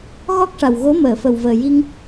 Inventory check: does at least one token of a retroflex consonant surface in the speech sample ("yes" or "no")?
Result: yes